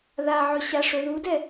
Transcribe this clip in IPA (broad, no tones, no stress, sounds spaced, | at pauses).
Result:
ð a ʕ ɵ ɕ a ʂ ɵ ð u d ɛ